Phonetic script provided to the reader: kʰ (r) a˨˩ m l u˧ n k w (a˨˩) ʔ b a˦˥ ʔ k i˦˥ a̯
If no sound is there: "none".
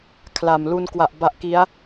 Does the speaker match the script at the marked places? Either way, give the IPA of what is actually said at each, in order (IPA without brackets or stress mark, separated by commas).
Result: l, a˨˩